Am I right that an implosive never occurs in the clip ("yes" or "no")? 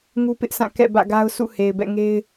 yes